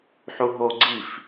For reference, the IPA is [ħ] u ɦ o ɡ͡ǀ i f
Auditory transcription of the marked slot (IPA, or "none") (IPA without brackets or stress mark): ħ